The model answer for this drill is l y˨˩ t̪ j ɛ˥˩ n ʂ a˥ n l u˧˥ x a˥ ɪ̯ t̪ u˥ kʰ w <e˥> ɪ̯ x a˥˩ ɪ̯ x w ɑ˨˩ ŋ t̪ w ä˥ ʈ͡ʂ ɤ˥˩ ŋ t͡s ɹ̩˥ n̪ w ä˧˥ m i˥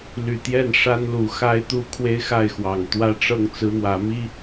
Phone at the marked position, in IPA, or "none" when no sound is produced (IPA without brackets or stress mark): e˥